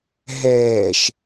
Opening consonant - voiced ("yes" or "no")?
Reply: yes